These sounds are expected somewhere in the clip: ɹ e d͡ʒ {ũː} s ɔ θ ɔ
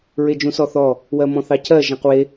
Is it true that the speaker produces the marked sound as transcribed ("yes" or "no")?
no